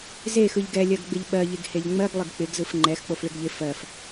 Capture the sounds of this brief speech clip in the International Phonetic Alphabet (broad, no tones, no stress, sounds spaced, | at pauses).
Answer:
z e x ɯ ʎ ɡ ɛ lʲ ɜ ɡ ɡ͡b ɪ ʎ ɓ ɜ ʎ e ɡ h e ʎ ŋ͡m ɜ ɡ lˠ ɪ ɡ k͡p ɪ ɡ z ɯ f ŋ͡ǃ ɛ x k͡p o f ɭ ɪ ɡ ʎ ɪ f ɜ f